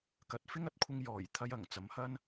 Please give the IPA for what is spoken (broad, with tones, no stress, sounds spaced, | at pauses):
k ɐ˨˥ t̚ f ɪ˥ ŋ ɐ˥ t̚ kʷʰ ɪ˧ ŋ j ɔː˨˩ j t̪ʰ ɐ˧ j ɐ˨˩ ŋ t͡s ɐ˨˥ m h ɐ˥ n